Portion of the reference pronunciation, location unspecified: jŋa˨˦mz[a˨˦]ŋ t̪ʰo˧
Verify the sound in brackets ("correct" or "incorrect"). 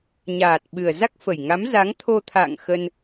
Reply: correct